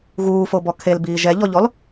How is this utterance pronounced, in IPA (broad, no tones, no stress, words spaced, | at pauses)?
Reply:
ɣuːfo bɔkʰel biːʒɛʎɔʎɔl